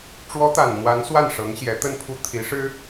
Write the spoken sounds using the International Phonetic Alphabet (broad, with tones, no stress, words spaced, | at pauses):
ʈ͡ʂwɔ˧˥t̪a˨˩n n̪wa˧˥n swa˥˩nʂɤ˧˥ŋɕjɛ˧˥ t̪ə˥˧npʰu˥˩ t̪ʰi˧˥ʂɻ̩˥